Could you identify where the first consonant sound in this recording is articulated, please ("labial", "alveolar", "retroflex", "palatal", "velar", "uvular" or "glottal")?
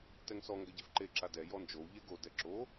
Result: alveolar